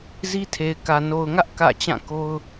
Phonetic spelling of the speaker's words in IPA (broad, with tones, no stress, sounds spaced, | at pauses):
z i˦ tʰ e˨ ɪ̯ k ä˨ n o˨ ʊ̯ ŋ ä˦ ʔ k ä̰˦˨ t͡ɕ ã˦˨ k o˦ ʊ̯